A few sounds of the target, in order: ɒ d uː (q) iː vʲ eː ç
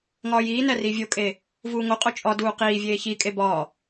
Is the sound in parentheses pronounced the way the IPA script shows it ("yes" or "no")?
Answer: yes